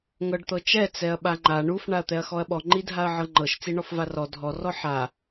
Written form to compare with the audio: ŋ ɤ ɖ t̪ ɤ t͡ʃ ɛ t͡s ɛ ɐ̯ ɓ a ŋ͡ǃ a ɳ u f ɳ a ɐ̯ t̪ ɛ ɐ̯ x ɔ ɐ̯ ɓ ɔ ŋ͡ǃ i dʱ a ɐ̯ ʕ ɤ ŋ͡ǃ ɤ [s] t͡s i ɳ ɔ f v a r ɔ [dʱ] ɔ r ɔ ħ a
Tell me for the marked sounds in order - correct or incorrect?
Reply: incorrect: ʃ, correct

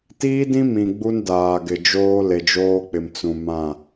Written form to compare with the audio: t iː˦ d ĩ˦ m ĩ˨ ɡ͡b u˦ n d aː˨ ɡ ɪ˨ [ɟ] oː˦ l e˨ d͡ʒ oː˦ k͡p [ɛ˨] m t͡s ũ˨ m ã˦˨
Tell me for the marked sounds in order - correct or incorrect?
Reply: incorrect: d͡ʒ, incorrect: ɪ˨

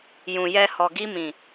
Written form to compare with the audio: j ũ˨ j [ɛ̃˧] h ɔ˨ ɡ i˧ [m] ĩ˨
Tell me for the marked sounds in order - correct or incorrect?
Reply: incorrect: ɛ˧, correct

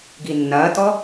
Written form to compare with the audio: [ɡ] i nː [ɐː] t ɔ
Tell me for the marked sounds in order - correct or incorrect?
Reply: correct, correct

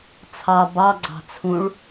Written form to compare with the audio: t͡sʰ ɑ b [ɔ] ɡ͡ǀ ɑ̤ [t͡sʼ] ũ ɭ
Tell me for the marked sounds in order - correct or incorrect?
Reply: incorrect: ɑ, incorrect: t͡sʰ

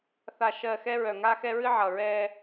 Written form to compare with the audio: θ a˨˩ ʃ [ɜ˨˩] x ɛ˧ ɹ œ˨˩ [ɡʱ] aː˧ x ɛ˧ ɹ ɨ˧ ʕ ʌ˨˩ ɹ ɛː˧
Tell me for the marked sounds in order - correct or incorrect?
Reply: correct, incorrect: ŋ

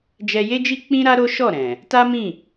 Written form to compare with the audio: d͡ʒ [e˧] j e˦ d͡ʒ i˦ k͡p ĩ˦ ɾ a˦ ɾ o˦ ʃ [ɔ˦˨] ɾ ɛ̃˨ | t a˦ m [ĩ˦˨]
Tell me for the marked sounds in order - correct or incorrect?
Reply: incorrect: ɛ˧, correct, correct

